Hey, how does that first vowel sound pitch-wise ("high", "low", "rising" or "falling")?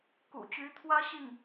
low